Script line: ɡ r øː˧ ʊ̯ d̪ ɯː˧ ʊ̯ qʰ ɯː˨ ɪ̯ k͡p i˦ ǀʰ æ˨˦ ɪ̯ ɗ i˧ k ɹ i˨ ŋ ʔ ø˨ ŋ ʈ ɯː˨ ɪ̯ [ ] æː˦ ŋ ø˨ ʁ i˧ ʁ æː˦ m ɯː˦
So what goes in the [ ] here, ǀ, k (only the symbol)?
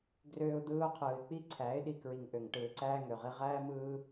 ǀ